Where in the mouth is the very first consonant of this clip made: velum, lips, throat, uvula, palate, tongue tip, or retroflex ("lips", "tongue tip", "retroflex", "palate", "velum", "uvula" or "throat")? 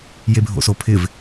palate